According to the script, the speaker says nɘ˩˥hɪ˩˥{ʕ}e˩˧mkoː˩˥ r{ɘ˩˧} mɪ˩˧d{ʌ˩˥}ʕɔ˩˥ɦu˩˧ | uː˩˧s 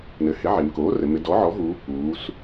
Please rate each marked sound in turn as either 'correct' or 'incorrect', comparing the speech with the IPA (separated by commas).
correct, correct, incorrect